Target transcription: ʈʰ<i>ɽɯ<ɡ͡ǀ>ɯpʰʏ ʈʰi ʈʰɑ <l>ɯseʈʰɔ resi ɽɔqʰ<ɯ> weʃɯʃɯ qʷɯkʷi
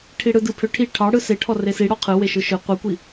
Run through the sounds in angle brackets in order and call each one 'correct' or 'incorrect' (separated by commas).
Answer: correct, incorrect, incorrect, correct